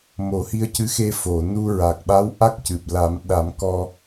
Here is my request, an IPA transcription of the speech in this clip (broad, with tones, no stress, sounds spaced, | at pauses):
m o˨˩˦ h i˧ ə̯ c ɨ˧˥ x e˧ f o˨˩˨ n u˧ ɹ a˨˩ k̚ ɓ a˧˥ w ʔ a˦˥ k̚ c ɨ˨˩ p̚ l a˨˩˦ m ɗ a˨˩˦ m k ɔ˧